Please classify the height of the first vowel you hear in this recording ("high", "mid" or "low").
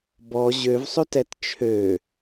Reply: mid